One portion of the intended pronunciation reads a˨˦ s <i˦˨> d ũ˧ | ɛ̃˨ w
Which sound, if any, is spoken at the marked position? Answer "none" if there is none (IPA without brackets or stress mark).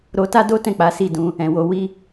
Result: i˦˨